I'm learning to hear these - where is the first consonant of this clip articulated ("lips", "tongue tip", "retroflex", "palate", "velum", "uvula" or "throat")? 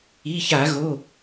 palate